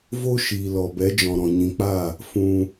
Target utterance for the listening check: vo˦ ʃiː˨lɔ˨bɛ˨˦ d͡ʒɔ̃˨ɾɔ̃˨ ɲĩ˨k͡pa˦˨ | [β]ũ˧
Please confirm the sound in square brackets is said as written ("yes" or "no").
no